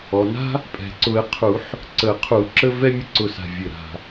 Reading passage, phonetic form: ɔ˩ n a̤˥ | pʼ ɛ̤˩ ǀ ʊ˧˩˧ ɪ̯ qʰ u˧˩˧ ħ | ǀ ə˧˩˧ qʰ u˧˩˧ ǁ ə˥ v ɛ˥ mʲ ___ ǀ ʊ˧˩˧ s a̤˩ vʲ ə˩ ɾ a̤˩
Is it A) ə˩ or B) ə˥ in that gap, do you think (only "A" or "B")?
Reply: B